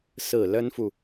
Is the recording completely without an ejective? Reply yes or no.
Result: yes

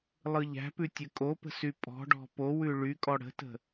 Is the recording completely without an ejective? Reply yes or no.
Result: no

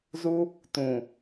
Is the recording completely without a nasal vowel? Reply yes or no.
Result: no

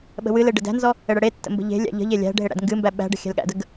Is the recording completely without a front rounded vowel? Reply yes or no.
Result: yes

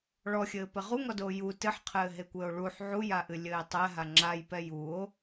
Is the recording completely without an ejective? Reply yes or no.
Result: yes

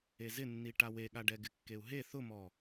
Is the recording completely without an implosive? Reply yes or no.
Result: no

